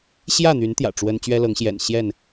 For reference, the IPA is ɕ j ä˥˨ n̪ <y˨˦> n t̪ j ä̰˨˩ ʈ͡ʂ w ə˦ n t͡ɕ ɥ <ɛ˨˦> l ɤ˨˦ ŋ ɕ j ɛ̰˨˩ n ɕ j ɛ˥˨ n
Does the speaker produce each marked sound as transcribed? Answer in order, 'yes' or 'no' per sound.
yes, no

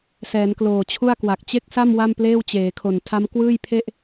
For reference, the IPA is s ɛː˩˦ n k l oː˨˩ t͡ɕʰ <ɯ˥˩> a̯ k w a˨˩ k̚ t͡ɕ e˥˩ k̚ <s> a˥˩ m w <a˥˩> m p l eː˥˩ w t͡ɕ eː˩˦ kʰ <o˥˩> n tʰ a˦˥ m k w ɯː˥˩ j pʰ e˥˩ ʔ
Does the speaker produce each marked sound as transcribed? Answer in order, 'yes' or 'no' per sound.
no, yes, yes, no

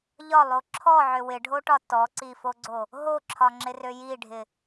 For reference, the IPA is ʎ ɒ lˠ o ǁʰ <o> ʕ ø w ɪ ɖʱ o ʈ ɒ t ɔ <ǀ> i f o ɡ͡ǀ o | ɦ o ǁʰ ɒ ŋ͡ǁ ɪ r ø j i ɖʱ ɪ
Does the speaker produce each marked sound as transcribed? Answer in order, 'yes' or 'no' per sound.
no, yes

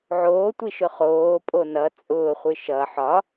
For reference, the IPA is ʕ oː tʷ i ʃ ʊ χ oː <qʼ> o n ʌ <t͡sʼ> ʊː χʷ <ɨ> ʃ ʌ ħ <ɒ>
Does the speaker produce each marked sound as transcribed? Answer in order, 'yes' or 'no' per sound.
no, yes, yes, yes

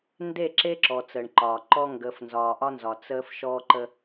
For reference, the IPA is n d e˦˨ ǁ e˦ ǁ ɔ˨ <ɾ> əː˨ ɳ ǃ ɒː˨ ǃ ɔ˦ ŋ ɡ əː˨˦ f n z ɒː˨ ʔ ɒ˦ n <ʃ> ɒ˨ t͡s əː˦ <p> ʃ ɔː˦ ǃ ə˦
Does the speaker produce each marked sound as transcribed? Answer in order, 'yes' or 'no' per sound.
no, no, no

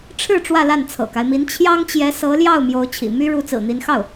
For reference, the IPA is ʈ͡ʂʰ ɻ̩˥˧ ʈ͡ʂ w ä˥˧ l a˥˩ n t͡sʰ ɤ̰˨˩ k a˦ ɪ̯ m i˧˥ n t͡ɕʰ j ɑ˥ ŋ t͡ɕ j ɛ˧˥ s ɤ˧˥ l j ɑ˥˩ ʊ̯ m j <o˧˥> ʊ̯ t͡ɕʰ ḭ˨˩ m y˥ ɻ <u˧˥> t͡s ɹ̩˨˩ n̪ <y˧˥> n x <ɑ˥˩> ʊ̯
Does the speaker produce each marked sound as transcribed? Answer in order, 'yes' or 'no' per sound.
yes, yes, no, yes

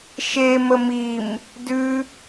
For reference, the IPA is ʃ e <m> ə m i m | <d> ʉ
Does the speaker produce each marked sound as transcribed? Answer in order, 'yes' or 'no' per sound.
yes, yes

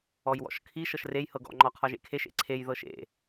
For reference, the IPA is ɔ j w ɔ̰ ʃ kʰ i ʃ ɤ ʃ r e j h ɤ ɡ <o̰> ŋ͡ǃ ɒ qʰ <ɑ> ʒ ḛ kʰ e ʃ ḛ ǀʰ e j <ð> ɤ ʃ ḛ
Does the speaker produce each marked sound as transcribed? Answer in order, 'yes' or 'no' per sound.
no, no, yes

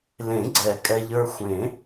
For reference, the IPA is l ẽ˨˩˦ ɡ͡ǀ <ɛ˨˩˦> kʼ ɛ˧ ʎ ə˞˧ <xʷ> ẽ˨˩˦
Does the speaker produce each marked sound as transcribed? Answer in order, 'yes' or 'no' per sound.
yes, yes

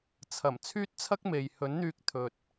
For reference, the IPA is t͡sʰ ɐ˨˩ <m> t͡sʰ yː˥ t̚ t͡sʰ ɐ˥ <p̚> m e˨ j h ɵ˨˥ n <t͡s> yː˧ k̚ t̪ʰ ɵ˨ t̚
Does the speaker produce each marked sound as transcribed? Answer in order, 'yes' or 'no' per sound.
yes, no, no

